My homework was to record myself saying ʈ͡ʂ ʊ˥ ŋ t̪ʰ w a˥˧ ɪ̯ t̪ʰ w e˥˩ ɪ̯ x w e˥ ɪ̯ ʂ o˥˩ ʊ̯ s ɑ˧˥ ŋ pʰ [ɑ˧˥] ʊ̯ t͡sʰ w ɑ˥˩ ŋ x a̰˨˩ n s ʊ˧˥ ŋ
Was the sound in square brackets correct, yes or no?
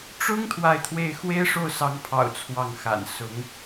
no